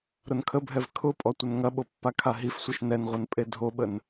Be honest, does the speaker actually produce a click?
no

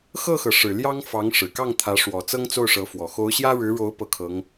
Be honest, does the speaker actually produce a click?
no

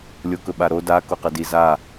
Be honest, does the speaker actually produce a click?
no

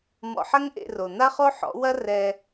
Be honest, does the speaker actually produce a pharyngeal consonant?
yes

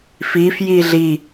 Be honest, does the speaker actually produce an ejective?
no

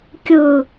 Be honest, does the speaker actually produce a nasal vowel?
no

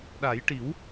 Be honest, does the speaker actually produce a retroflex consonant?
yes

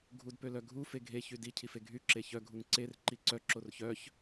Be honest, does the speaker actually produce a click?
yes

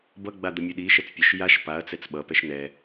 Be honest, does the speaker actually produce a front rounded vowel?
no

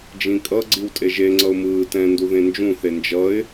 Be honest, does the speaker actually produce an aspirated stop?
no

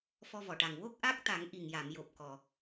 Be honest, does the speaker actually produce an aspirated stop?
no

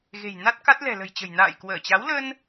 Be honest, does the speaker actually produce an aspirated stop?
no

